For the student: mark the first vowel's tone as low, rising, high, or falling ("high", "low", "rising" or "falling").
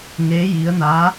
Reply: rising